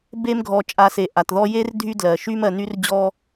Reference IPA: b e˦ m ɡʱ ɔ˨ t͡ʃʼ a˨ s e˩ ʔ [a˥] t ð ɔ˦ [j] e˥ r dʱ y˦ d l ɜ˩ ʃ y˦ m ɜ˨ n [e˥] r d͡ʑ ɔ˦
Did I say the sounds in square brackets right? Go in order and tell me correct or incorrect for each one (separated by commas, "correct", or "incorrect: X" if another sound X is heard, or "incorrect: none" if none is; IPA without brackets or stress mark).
incorrect: a˩, correct, incorrect: y˥